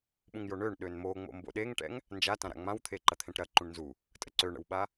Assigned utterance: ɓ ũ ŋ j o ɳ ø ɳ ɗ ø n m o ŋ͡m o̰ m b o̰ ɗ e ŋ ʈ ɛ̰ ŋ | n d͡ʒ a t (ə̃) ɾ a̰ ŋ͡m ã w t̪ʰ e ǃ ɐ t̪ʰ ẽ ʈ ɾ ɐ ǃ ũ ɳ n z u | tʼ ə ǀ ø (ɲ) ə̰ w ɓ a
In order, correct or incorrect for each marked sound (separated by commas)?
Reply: incorrect, incorrect